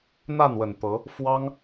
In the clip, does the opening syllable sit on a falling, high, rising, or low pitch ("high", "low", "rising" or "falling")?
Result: falling